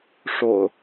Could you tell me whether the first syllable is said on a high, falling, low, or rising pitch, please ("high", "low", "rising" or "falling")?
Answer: low